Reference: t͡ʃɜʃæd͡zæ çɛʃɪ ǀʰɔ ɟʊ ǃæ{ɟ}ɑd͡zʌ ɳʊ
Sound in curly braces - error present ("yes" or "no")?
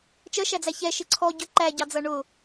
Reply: no